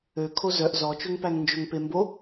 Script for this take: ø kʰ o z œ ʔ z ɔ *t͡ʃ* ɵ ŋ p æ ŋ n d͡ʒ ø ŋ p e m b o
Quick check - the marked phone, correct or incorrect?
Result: correct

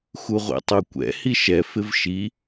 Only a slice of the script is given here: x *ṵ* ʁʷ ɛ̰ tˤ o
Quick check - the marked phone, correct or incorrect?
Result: incorrect: u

